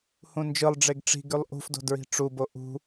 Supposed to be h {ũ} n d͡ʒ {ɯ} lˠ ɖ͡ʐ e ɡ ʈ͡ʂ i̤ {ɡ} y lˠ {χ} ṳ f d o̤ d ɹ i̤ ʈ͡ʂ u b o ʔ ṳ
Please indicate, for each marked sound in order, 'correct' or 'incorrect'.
correct, correct, correct, incorrect: ʔ

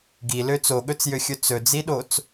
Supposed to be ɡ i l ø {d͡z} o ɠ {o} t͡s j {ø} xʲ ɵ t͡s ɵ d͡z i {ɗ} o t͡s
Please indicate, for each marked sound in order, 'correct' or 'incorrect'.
incorrect: t͡s, incorrect: ɵ, correct, correct

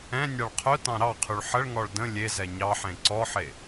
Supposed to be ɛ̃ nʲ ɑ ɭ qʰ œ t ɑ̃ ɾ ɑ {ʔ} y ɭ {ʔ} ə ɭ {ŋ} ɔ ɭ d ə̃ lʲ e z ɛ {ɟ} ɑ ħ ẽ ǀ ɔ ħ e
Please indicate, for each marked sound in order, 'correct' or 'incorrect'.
incorrect: qʰ, incorrect: ħ, correct, incorrect: ɲ

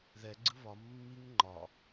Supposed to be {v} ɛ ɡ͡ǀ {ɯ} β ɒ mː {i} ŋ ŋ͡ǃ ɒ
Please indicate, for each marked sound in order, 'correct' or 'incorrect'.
incorrect: ð, correct, correct

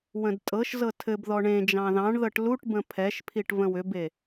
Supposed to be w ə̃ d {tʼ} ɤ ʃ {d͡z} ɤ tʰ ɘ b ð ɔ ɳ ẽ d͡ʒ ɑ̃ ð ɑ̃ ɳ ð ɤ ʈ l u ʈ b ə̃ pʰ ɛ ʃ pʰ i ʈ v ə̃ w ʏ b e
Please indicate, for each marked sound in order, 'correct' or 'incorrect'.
correct, incorrect: z

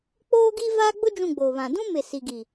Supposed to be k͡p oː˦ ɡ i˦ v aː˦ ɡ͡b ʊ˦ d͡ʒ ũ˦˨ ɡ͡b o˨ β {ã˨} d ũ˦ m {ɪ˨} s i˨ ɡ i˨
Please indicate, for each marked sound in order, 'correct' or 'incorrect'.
correct, correct

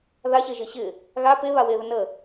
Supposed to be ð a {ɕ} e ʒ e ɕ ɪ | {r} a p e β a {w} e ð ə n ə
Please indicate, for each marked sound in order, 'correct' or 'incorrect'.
correct, incorrect: ɣ, correct

